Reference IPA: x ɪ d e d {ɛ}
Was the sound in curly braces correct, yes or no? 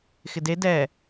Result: yes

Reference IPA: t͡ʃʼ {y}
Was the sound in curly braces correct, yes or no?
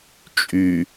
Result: yes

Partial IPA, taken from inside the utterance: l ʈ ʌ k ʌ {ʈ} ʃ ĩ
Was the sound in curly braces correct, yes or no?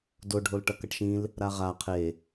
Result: yes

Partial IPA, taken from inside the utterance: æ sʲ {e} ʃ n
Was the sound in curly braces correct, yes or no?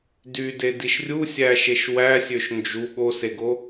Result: no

